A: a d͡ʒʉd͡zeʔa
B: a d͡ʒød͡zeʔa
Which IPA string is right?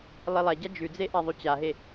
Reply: A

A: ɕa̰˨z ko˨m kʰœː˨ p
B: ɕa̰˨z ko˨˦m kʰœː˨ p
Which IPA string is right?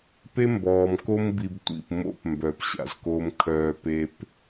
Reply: A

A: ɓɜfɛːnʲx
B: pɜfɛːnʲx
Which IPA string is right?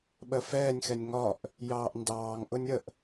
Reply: A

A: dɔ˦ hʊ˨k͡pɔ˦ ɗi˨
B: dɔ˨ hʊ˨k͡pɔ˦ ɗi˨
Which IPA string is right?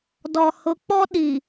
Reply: B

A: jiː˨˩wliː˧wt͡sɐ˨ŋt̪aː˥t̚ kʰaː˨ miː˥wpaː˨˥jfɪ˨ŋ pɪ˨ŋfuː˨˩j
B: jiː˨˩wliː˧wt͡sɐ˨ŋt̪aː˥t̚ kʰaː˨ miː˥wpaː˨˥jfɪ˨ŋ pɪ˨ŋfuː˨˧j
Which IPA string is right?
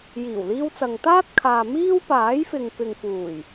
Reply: A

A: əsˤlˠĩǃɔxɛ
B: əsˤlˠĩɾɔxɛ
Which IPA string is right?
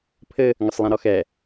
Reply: B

